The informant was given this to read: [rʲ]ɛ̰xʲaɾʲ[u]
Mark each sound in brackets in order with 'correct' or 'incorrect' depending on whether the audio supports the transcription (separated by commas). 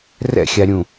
incorrect, incorrect